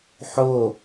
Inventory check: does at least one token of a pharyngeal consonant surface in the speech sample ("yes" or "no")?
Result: yes